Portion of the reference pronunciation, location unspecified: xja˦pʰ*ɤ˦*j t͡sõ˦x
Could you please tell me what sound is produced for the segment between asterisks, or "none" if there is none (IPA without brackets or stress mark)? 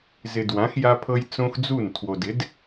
ɤ˦